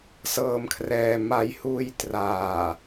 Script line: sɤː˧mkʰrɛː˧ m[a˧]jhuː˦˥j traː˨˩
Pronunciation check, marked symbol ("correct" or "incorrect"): correct